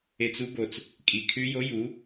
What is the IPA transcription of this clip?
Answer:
e˧t͡su˦˥bo˨˩t͡s | kʼi˨˩kʰʉ˦˥jo˧˥˧j u˩˥

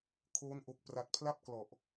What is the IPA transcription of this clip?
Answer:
kʰoː˦˥n ʔo˨˩k̚pra˨˩t̚pʰla˥˩p̚ klɔ˨˩ʔ

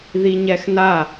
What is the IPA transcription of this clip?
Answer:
ðiɲɛxna

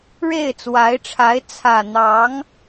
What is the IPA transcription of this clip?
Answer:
ɻe˥˩ɪ̯t͡swa˧˥ɪ̯ʈ͡ʂʰa˧˥ɪ̯ t͡sʰä˨˩ n̪ɑ˧˥ŋ

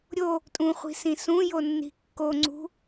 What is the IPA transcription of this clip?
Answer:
ɾʲo | tʼũχʷi̤sĩ sũjonːi̤ kːoŋ͡ǀṳ

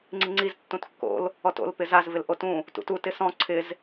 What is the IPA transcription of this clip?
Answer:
ŋ͡ǀiŋ͡ǀiz tːũtkːo̰l | ɔto̰l pɪzaz vɪlʔotũ | tṵtu tɪsɔ̃ ǀʰɪz

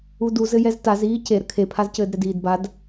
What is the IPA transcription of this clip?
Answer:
uduzɘjɛz taz iːce ɾəkʰepʰazcɘːd ɾɛdiːdbad

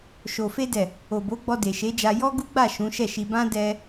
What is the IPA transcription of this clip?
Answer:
ʃo˨fe˧dɛ˨ | o˨bo˨˦ ɡ͡bɔ˧de˨ʃe˨˦d͡ʒa˧ jɔ˦ɡu˦ɡ͡ba˦˨ ʃũ˨˦ʃɛ˦˨ʃi˧ bã˦dɛ˧

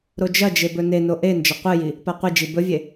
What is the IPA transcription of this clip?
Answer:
ɾod͡ʒɐd͡ʒe bɵneno ʔe nd͡ʒɐqʷɨji | paqʷid͡ʒi bɵvʲe

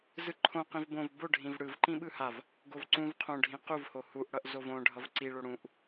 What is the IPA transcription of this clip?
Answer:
zɯǃʰõ qĩvbõv boɖʱĩv ɽɯv ǃĩɓɯhav | ɡovǀũv qʰõɖʱĩ quvho huʔɽʌʔ zovõ ɖʱʌvǀiɭo ɽũʔ

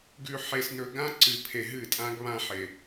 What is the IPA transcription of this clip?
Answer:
ɡʉ˨ħe˨s nɵ˨ɡã˦ ǀɨ˨ pʰe˨ɦɨ˦˨tʼã˦ɡ βã˦ħe˨

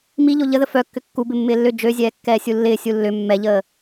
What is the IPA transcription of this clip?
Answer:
miʎo ʎəðə fœkːʏ kːubɪ mːɪːlːʏ d͡ʒøzʲɛː kːɛːsʲulːɪː sʲulːʏ mːɛʎəː

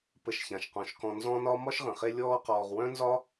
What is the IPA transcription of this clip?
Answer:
pə˨ʃçã˩ʃqɔ̃˩ʃkɔ̃˨ nzɔ̃˥nɒ˥ mɒ˥ʃʁə̃˩χe˦ lʲɔː˦qɔː˨ʁ wœ̃˥nzɒ˥

